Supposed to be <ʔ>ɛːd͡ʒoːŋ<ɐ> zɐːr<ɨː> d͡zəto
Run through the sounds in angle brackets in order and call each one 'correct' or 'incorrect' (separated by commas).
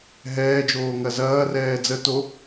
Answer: incorrect, correct, incorrect